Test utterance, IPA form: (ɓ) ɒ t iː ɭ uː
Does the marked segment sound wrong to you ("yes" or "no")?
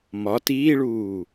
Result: yes